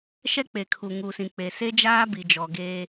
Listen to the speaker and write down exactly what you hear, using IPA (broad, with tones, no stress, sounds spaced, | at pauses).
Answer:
ʃ ɛ˦ k͡p e˨ kʰ u˨ ŋ u˨ s ĩ˨ k͡p e˨ s e˦ d͡ʒ aː˦ b i˨ d͡ʒ ɔ˨ ɡ eː˦